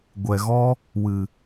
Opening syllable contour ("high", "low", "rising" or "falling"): low